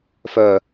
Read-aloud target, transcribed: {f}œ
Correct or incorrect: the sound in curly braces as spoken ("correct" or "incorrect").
correct